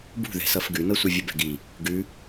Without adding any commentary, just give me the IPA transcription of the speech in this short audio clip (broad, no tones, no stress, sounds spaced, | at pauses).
b ṳ ð ɛ̤ s ʌ f ɡ ʉ n ɤ sʷ ʌ vʲ ə b ɛ̤ ɡ i | ɡ ʉ